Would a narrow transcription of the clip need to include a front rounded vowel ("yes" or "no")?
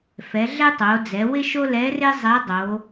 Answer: no